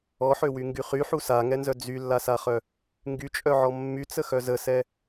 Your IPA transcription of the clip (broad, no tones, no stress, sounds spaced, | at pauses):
ɔ ħ ø w y ŋ ɡ y χ y ħ u s a ŋ ɛ n z œ d͡z y lː a s a χ œ | ŋ ɡ y t͡ʃʼ œ ʕ ɔ mː y t͡s ə x œ z ə s ɛ